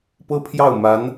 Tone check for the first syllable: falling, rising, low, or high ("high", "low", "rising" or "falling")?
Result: high